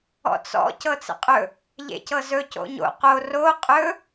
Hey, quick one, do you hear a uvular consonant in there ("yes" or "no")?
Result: yes